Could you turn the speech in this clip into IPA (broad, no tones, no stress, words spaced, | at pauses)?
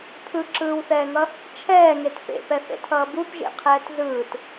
pʰɯǁɯːwθɛːŋʌ | t͡ʃʰɛːŋet pḛpɛθḛtʰʌː bupʒḛqʰɛːt zɯːt